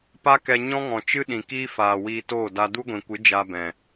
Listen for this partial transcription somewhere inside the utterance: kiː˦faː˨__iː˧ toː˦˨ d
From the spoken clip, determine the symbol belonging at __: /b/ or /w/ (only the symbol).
w